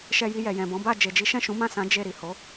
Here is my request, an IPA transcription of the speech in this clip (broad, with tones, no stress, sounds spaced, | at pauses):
ʃ ɛ˧ j i˧ j ɛ˨ j ɛ̃˨ b ɔ̃˨˦ b a˦˨ d͡ʒ e˨ d͡ʒ i˨˦ ʃ ɛ̃˦˨ ʃ ũ˨˦ m ã˦˨ s ã˨˦ d͡ʒ e˦˨ ɾ i˨ h o˨˦